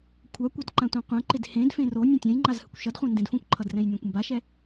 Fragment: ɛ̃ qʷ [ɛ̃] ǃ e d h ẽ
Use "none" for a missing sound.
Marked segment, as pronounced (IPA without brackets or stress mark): ɛ̃